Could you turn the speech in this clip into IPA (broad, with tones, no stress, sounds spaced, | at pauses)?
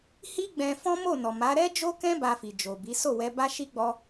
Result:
h i˦ ɡ͡b ɛ̃˧ f ɔ̃˦ m o˦˨ n ɔ˨ m a˨˦ ɾ ɛ˦ d͡ʒ o˦ k ɛ̃˦ b a˧ f i˨ d͡ʒ o˨ b i˨˦ s o˦˨ w ɛ˧ b a˦ ʃ i˦ ɡ͡b ɔ˦